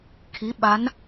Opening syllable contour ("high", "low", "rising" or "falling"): rising